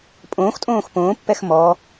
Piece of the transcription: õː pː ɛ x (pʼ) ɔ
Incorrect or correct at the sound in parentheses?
incorrect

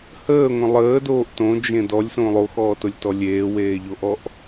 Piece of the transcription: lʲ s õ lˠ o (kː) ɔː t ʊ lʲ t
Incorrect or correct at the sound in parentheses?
incorrect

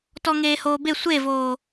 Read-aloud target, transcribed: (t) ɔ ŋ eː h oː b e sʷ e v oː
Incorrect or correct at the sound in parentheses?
correct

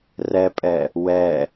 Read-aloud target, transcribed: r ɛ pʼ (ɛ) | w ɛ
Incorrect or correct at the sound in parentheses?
correct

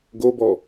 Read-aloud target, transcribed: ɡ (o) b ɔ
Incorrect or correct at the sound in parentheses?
correct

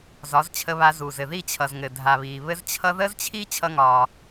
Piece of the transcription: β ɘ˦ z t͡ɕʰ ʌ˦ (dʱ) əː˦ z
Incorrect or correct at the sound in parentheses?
incorrect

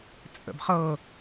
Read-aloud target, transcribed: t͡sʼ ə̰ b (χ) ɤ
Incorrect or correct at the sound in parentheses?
correct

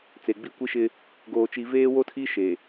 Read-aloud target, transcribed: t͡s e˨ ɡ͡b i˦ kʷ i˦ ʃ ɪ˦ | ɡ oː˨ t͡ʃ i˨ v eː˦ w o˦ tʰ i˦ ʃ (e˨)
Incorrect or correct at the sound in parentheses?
correct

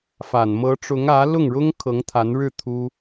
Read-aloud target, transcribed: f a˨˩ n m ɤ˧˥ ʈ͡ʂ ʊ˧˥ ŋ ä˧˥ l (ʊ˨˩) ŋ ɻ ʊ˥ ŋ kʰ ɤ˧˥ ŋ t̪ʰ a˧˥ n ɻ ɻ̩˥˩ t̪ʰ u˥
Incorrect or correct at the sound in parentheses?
incorrect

